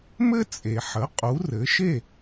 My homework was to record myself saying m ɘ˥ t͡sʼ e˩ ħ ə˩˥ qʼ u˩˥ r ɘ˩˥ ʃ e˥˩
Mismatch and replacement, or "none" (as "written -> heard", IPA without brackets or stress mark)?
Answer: none